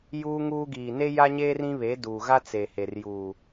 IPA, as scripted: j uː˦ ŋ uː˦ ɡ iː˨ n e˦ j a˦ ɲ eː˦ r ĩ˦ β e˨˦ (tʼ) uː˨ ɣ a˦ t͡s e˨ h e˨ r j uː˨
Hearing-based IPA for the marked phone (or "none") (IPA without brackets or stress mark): d